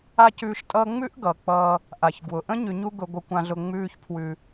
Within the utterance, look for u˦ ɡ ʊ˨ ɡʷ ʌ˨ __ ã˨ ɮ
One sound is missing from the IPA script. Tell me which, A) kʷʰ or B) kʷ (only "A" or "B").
B